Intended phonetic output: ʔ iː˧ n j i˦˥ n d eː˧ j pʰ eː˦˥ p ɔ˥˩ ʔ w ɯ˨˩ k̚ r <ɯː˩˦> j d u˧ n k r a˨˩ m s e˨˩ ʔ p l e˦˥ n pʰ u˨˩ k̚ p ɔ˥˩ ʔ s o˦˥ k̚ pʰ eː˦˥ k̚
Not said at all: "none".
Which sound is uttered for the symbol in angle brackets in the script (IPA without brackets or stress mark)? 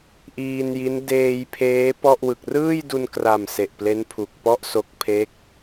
ɯː˥˩